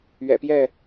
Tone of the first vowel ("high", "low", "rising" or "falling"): low